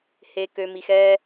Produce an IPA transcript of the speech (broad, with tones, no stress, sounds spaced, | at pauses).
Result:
h e˨ k ø˨ m i˨ x ɛː˦